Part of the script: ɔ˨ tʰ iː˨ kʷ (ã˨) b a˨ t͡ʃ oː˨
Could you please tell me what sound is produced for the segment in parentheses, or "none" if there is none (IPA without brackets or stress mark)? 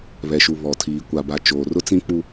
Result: a˨